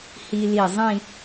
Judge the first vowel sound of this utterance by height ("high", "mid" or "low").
high